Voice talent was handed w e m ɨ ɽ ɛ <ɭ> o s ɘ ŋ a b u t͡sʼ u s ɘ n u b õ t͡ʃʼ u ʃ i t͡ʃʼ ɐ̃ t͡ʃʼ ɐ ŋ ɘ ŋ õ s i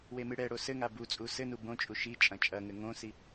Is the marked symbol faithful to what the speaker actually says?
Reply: no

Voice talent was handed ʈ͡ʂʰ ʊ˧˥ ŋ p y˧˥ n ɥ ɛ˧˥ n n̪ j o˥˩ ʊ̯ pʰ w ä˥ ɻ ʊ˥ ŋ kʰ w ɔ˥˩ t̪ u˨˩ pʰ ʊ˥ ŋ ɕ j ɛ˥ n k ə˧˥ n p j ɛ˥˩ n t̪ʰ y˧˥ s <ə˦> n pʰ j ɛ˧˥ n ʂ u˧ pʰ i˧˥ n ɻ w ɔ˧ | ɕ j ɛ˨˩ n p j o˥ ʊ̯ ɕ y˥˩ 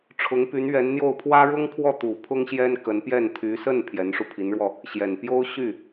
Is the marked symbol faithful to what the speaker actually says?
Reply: no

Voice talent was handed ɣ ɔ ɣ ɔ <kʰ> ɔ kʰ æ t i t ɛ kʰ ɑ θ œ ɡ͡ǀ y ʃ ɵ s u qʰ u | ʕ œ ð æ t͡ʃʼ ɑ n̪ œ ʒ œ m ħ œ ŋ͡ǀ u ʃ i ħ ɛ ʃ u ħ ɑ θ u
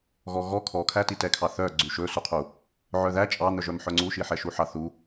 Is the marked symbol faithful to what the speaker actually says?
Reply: yes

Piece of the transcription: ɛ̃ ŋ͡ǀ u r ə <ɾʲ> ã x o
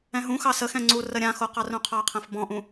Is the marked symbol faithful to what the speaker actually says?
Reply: yes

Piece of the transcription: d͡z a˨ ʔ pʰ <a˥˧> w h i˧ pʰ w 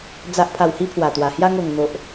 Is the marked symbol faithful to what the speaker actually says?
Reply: no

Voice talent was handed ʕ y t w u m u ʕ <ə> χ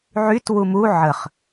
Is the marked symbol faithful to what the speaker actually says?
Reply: yes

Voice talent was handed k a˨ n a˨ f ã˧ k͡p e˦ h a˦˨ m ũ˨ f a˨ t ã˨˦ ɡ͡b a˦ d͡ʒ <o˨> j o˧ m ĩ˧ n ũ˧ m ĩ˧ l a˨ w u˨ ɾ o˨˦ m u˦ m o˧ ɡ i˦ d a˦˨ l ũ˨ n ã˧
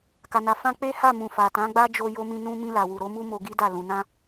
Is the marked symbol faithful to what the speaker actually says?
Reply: no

